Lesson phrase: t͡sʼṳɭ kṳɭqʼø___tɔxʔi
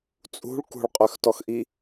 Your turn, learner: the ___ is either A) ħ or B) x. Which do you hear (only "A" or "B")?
B